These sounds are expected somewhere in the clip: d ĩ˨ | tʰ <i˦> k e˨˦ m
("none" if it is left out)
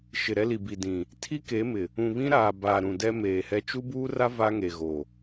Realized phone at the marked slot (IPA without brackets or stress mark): i˦